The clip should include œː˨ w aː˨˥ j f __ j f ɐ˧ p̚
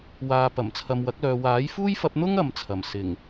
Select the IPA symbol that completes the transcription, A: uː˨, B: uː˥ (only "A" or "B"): B